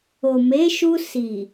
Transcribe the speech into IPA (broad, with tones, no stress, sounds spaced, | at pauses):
o˨ m e˨˦ ʃ u˧ s i˨